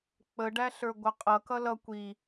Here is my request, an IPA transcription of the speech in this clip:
k͡p ə ɖ æ ɬ ə˞ ɡʷ ɑ qʼ ʌ k ʌ l ʌ kʷ i

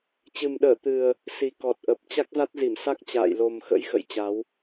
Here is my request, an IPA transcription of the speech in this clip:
t͡ɕ ɨ˨˩ m ɗ əː˧˩ t̪ ɨ˨˩ ə̯ | s i˨˩ k ɔ˨˩ t̚ ʔ ə˨˩ p̚ t͡ɕ a˦˥ k̚ z a˦˥ t̚ z i˧˩ m s a˦˥ k̚ t͡ɕ a̰ː˧˨ j l o˨˩ m x ə̰˧˥ j x ə̰˧˨ j t͡ɕ a˨˦ w

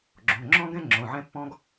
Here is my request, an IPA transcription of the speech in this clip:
ɡ͡ǁ õ˩˧˩ ŋ͡ǁ ɔ̃˦ ɡ ɛ̃˦ ŋ͡ǁ õ˩˧˩ ʕ ɛ̃˦ pː ɔ̃˦ ɡ

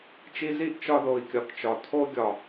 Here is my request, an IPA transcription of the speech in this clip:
t͡ʃ i˧ z i˦˨ ʔ t͡ʃ ɒ˧ ð o˨ i̯ kʲ ɒ˨ k t͡ʃ ɒ˨ tʰ o˧ ɡʲ ɒ˨

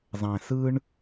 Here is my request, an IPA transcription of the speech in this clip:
zˤ æ̃˨˩ s ɯː˥ ɳ

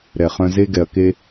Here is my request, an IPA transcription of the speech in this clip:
ɾ ɛ˨ χ œ̃˧ z e˦ ɡ ɛ˨ ɐ̯ k e˧

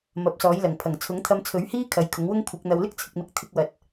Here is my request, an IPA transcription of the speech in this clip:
m ɐ˨˥ p̚ s ɔː˨˥ j l ɐ˨˩ ŋ pʰ ɐ˨˩ ŋ t͡sʰ ʊ˨˥ ŋ t̪ʰ ɐ˧ m t͡sʰ ɵ˨˥ ɥ h iː˥ kʰ ɐ˨˥ j kʰ ʊ˨˥ ŋ w ʊ˥ ŋ kʷʰ ɪ˨˥ k̚ n̪ ɐ˧ w l ɪ˥ k̚ t͡sʰ ɪ˨ k̚ m ɪ˨˥ k̚ t̪ʰ ɪ˧ k̚ w ɐ˨ t̚

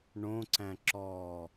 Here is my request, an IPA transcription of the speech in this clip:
ɳ õ ǀ æ̃ ǁ ɔ

